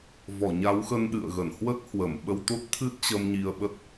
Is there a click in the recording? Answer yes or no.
no